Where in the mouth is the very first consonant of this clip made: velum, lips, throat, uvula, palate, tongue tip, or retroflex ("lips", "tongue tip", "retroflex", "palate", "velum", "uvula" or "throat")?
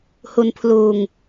throat